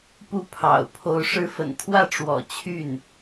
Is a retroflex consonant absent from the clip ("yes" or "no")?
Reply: no